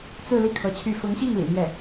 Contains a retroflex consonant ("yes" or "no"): no